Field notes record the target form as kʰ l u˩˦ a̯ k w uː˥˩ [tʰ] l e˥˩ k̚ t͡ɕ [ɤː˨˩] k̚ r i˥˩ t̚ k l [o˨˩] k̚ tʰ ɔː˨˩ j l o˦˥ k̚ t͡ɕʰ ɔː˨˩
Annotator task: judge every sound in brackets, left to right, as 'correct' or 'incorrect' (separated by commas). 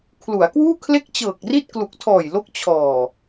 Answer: incorrect, correct, incorrect